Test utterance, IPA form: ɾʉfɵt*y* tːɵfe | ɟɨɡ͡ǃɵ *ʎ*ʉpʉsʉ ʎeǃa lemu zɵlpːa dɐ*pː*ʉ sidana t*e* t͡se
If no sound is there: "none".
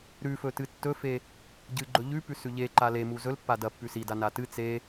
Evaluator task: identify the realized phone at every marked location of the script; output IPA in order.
ɨ, ʎ, pː, ɨ

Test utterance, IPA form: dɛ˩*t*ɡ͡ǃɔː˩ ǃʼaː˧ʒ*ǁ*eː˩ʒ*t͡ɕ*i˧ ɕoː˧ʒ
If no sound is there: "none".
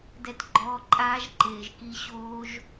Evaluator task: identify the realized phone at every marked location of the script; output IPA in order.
t, ǃ, k

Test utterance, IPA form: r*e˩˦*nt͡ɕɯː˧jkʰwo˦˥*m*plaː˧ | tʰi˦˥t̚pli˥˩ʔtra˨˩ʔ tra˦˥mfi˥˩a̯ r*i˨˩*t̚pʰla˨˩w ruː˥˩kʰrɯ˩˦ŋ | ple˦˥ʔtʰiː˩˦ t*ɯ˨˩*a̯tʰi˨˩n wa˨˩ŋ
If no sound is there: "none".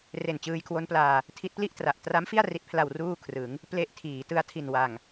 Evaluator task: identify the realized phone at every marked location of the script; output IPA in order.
e˨˩, n, i˨˩, ɯ˧

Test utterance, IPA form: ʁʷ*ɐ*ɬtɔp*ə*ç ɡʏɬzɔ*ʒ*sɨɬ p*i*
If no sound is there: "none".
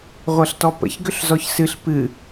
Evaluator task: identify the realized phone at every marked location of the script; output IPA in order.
ɐ, ə̰, ç, ɨ

